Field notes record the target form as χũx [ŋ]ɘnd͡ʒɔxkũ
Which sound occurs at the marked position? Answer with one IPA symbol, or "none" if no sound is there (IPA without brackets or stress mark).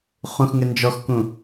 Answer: ŋ